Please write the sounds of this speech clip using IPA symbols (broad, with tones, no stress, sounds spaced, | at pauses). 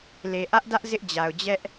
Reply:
l e˨ ʔ ä˦ ʔ d ä˦ ʔ z ɪ˦ ʔ d͡ʑ a˨ ʊ̯ d͡ʑ ɛ˦ ʔ